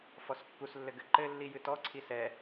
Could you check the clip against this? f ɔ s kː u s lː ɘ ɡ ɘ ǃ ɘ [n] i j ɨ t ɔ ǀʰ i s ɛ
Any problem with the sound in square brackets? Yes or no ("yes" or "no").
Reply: yes